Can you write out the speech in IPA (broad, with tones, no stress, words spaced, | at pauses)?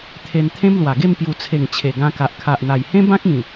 t̪ʰe˧nt̪ʰẽ˦mlwa˨˩ ɡe˥˧mpju˨˩t͡sʰe˨˩ŋ t͡ɕʰe˨˩ɡã˧ka˨ʔ kʰa˨ʔn̪a˨˩jhẽ˦ bã˦k̚ĩ˨˩